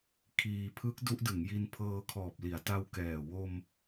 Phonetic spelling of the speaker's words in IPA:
kʰ iː˧ pʰ ɯ˦˥ k̚ d u˦˥ ʔ d ɯ˩˦ ŋ j i˧ n pʰ ɤː˧ kʰ ɔː˨˩ p̚ l i˩˦ a̯ t a˧ w k ɛː˨˩ w o˧ m

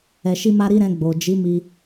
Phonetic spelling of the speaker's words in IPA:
ɛ˧ ʃ i˦ m a˦ ɾ i˦ ɾ ɛ̃˧ ɡ͡b o˨ d͡ʒ i˨˦ m i˧

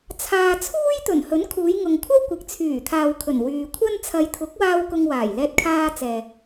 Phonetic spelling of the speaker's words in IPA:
t͡sʰ aː˨ t͡sʰ uː˥ j t̪ ɵ˨˩ n h ɵ˨˥ n kʰ uː˨˧ j ŋ ʊ˨ ŋ kʷʰ ɐ˥ w kʷ ɪ˨ k̚ t͡sʰ yː˨˩ t̪ʰ aː˨ w kʰ ɵ˨˩ n w yː˨ kʷʰ ɐ˥ n t͡sʰ ɐ˧ j t̪ʰ ʊ˨˥ k̚ w aː˥ w k ʊ˧ ŋ w aː˨˩ j l ɛː˧ t̚ kʰ aː˧ t͡s ɛː˨

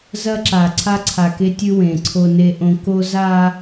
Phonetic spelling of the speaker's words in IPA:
z ɐ˦ ǁ a˨ ǀʰ a˦ ǀʰ a˨ k e˦ tʲ ɨ˦ w ẽ˨ ǀʰ o˦ n e˦ ʔ õ˦ k o˦ z a˦

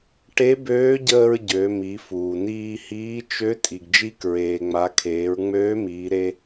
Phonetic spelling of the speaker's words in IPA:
ʈ e˧˥ b øː˧˥ ɟ əː˧ ɹ ɟ ø˩˧ m i˩˧ f uː˩ n iː˧ h iː˧˥ t͡ʃ ø˧˥ tʼ i˩ ɡ d͡ʒ i˧ k ɹ eː˩ ŋ͡m a˩˧ kʰ eː˩˧ ɹ ŋ͡m øː˧˥ m iː˩˧ ɾ e˧

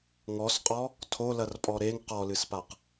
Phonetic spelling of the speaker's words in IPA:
ŋ ɔ s qʼ ɔ | tʰ o l ɐ r pʼ ɔ ɾ e ŋ q ɔ l ɨ s p a q

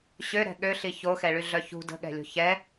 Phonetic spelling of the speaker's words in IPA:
ɕ ø ɾ ɛ̤ ɠ ø ɬ i ç o x ɛ ɭ y ɮ œ ç ṳ d ə̤ ɠ ɛ̤ lʲ o̤ ç ɛ

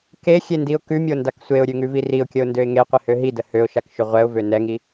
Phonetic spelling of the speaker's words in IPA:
k e xʲ e n d i ʊ̯ k ʉ mʲ o n d a k sʷ e ʊ̯ ɾʲ ʉ ŋ ʉ v i r i ʊ̯ kʲ ə ʊ̯ n d ø ɪ̯ ŋ e qʷ i h ø ɦ i d ə h ø ʊ̯ ʃ a k ʃ ʉ ʁʷ ɛ ʊ̯ v ø n ɛ ŋ i

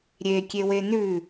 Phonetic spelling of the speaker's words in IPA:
ɾʲ e kʲ e w e n ʉ

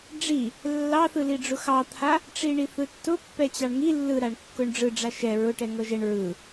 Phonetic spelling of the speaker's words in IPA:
ɖ͡ʐ i | lː ɑ θ ɯ l i ɖ͡ʐ ʊ x ɑ t̪ʰ a | ʈ͡ʂ i ɳ i θ ɯ tː ʊ pː ɛ t͡ɕ ɑ ɳ ŋ i lː ɯ ɾ a ɳ kː ʊ ɳ ɖ͡ʐ ɯ ɖ͡ʐ a ʃ ɛ ɹ ʊ ʈ ɛ ŋ ɤ ʒ ɛ ɳ ɹ ɯ

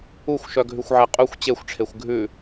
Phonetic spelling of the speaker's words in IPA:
u xʷ ʃ œ ɡʱ ʉ xʷ ʕ ɛ qʼ ʉ xʷ t͡ɕ e xʷ ʈ͡ʂʰ e xʷ ɡʱ ʉ

